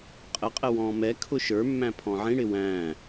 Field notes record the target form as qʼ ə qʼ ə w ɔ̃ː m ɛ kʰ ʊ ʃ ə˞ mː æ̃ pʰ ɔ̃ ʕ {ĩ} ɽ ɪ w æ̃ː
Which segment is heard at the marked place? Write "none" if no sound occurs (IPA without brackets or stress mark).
ĩ